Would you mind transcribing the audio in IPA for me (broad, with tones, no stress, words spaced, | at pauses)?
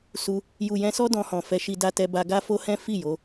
su˧ | ju˨jɛ̃˧sɔ˦ dɔ̃˧hɔ̃˨ fɛ˧ʃi˧ da˧tɛ˧ ba˧ ɡa˦fo˦hɛ̃˦ fi˦˨jo˨˦